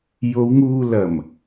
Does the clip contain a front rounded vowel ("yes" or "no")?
no